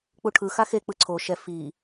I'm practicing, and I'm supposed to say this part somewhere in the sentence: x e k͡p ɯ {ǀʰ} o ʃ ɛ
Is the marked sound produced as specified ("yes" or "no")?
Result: yes